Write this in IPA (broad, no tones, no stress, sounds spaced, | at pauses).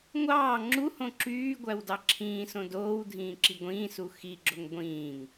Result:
ŋʷ ɑː ŋ͡ǁ u h õ ǁ yː ɡʷ æ w d ɑ ǁʰ ĩː s õ d oː w dʱ ĩː ǁ i ɡʷ ĩː s u x i ɡ͡ǁ o ŋ ɡʷ ĩː ŋ